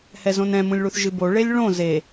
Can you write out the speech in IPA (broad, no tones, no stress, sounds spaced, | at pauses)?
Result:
h ɛ z õ n ɛ̃ m ũ lʲ ɭ u θ ʒ ɨ b o ɭ e lʲ ɭ õ z e